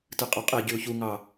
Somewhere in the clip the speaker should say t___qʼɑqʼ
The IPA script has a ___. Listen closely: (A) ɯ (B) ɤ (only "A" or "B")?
A